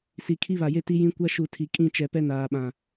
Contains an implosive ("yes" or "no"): yes